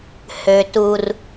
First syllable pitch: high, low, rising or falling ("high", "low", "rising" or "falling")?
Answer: low